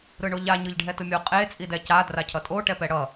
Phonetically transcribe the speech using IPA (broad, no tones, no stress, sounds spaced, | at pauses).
ɾ ɯ ɳ o ʎ a ɲ ɯ ʎ ɖʱ ɛ t ɯ mʲ o qʼ e t͡sʼ i d ɛ c a d r a cʰ ʌ tʼ o ʈ ɛ p ɛ ɽ ʌ